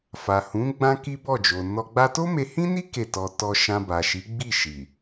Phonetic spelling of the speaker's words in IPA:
f a˨ h ũ˨˦ ɡ͡b ã˦ k i˦ b ɔ˦˨ d͡ʒ o˨ n ɔ˧ ɡ͡b a˦ t o˦ m e˧ h ĩ˦ n i˦ k e˦˨ t ɔ˧ t ɔ˧ ʃ ã˧ b a˨ ʃ i˨˦ ɡ͡b i˦˨ ʃ i˨

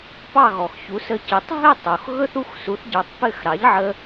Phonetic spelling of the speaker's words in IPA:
p ɑ˥˩ ɣ ɔ˩ x ç u˩˥ s ə˧ c ɘ˩˥ tˤ ɦ ɘ˥˩ tˤ o˩ x ɣ ɵ˥ θ u˥˩ x s u˩˥ θ ɟ ɑ˩˥ tˤ p ɘ˥˩ x ɾ ɑ˩˥ ʎ ʕ ə˧

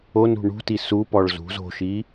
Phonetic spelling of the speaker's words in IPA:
o n ṳ ɳ ṳ t i s u p ɔ ɭ z ṳ z o̤ ʃ i

